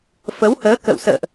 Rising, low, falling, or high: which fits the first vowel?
rising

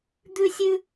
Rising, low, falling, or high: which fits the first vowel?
high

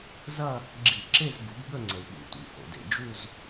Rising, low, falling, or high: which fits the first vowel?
falling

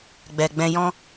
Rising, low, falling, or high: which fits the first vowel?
low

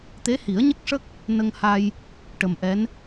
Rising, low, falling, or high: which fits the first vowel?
rising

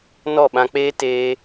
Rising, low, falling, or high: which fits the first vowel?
falling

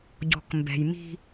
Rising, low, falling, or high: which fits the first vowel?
low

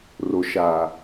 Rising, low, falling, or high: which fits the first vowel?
low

